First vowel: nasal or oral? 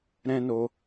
nasal